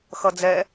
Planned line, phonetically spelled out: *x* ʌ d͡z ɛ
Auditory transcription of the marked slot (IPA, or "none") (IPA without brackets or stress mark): x